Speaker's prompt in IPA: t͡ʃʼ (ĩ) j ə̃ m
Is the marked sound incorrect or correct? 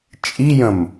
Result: incorrect